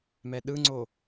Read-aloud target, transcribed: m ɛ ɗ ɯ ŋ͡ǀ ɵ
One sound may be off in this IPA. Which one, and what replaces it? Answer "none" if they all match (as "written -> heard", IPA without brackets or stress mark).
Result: ɵ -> o